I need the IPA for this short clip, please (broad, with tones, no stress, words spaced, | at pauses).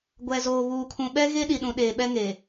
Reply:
ɡʷɛ˨zoː˨ βuː˨kʰũ˨ɓɛ˦ ɣe˦ɗi˨ɗũ˨ ɗeː˨ɓɛ˦ŋe˨